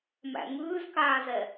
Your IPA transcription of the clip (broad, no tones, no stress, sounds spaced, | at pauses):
m æ̰ ŋ ʉː z k aː z ɛ